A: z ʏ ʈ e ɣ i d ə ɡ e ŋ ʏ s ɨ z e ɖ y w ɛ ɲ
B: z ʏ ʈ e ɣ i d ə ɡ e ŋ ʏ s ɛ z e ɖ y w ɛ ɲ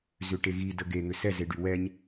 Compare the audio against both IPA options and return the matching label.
B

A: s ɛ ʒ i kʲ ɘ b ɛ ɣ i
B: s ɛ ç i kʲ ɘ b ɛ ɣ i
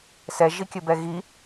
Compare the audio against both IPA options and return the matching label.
A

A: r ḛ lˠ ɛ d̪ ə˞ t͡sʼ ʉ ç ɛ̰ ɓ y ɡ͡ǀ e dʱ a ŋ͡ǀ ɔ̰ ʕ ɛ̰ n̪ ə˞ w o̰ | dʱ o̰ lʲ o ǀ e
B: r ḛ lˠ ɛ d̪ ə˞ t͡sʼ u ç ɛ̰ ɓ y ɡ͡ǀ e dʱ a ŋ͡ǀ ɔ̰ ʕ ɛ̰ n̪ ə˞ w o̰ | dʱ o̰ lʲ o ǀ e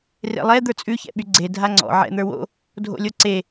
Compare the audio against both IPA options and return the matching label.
A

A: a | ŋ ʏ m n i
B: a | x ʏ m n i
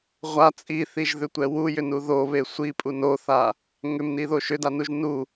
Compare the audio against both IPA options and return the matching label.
A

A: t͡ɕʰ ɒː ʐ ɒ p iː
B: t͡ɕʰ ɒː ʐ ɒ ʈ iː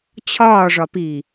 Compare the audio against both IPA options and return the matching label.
A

